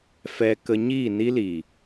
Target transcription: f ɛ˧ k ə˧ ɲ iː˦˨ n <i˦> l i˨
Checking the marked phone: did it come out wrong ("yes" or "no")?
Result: no